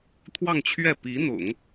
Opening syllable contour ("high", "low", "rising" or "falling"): falling